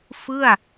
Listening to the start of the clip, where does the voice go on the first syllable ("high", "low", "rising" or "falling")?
falling